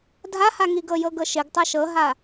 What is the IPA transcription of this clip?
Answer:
dʱahaŋiɡɤ jɤɡɤʃɪɡ tˤɤʃɤɦa

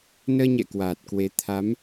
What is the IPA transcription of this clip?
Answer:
nəː˧ɲɛ̰˧˨ kwaː˨˩t̚kwe˨˦ t̪ʰa˨˦m

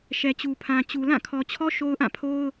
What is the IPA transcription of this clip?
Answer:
ʃɛ˨t͡ɕu˨pʰã˨t͡ɕu˨ lã˦˨kʰɔ˨t͡ɕʰɔ˦ ʃo˦ʊ̯ʔã˦˨pʰo˦ʊ̯

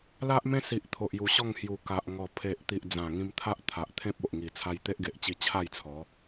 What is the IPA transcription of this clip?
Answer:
la˦ʔmẽ˦si˨ʔ t̪ʰo˨ʔju˨˩ɕɔ˥˧ŋ hju˨˩ ka˨ʔ ŋɔ˨˩ pʰe˨ʔt̪i˨ʔ d͡zã˨˩ŋĩ˧mt̪ʰa˦ʔ t̪ʰa˨ʔt̪ʰẽ˦p̚o˨ʔŋi˨˩ t͡sʰa˧jt̪e˦ʔɡe˨ʔt͡ɕi˧ t͡ɕʰa˥˧jt͡sʰɔ˨˦

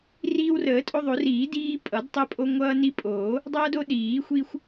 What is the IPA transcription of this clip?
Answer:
riː˦wrəː˨˩˦tʼo˦ðˤo˨˩˦r iː˨˩˦diː˦ pʼʌ˨˩˦d tˤəː˦pʼo˦ ŋʷʌː˦ni˦pʼoː˨˩˦ | dˤʌː˦do˦ ɗiː˨˩˦xʷi˦xʷ

